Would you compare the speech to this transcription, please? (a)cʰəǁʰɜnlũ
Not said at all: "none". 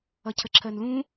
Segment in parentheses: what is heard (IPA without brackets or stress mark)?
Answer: ʌ